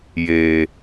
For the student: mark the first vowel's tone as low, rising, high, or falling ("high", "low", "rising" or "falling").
low